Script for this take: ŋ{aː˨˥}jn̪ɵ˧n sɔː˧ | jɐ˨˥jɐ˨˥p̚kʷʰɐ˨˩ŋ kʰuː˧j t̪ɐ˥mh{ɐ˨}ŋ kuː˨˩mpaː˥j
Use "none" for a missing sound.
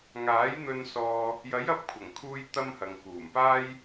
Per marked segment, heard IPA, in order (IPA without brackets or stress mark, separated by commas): aː˨˥, ɐ˨